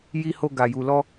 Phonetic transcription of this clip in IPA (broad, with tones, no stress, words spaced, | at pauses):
ji˦ho˦ ɡa˧ju˧lɔ˦